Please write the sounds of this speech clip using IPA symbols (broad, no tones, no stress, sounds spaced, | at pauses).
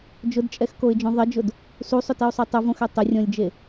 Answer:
d͡ʒ ʊ d t͡ʃʼ ɛ x k o ɪ̯ d͡ʒ õ ðˤ ɪ d͡ʒ ʊ d | s u sˤ ʊ t i ʊ̯ sˤ o tˤ ʊ v õ x ɛ tˤ ɪ rʲ ɔ̃ lʲ d͡ʒ e